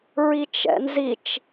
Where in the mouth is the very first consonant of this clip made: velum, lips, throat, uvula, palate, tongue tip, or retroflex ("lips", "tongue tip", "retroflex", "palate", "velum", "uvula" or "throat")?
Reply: tongue tip